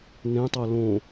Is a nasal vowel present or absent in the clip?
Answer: present